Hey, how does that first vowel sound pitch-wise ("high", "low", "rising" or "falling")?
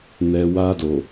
low